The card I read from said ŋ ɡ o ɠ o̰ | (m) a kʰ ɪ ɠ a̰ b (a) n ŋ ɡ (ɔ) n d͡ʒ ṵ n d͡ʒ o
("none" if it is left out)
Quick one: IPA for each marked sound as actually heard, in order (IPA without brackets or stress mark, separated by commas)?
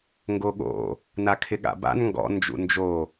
n, a̰, ɔ̰